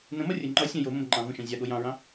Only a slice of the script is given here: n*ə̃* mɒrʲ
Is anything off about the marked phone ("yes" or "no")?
no